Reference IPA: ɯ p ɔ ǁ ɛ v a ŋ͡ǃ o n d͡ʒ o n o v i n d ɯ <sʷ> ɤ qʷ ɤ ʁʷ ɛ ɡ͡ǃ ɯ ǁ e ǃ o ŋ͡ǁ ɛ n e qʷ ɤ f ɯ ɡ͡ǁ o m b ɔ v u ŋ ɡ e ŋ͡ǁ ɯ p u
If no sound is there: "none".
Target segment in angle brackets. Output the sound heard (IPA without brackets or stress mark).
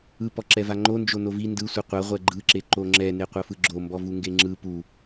sʷ